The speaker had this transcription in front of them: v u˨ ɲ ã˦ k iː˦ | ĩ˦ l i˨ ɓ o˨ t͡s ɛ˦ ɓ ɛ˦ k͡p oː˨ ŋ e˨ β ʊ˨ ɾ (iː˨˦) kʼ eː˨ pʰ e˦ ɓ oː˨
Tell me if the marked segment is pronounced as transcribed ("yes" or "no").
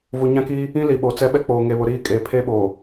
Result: no